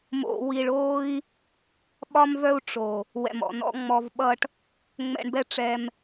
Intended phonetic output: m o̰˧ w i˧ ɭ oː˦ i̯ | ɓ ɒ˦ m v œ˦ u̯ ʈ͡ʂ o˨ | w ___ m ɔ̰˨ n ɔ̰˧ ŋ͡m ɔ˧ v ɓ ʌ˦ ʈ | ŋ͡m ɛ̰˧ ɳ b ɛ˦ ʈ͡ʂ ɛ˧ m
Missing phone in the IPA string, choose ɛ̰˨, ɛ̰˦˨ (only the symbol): ɛ̰˨